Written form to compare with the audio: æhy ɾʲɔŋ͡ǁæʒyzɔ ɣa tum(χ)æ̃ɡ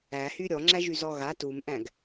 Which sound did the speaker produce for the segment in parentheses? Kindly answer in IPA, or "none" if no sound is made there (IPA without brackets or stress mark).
ʔ